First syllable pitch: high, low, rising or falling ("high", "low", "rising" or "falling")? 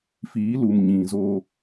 rising